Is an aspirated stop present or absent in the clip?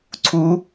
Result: present